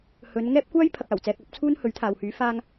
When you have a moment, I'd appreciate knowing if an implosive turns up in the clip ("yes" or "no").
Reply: no